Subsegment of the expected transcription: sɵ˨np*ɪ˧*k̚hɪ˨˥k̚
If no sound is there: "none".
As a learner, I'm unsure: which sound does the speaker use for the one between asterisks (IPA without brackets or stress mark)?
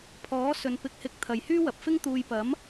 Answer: ɪ˨˥